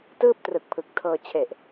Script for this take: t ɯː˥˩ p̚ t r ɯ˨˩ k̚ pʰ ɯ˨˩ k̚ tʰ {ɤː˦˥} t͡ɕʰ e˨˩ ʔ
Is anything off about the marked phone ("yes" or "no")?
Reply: yes